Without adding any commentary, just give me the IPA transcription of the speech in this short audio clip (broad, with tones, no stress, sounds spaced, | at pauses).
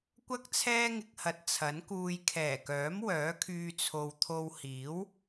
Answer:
kʷ ɐ˥ k̚ t͡sʰ ɛː˥ ŋ ɪ˧ k̚ h ɐ˨ t̚ t͡sʰ ɐ˨˥ n k uː˨ j kʰ ɛː˨˩ k œː˨˥ m w œː˨˥ kʰ yː˧ t͡sʰ o˨ w t̪ʰ o˧ w h iː˨˥ w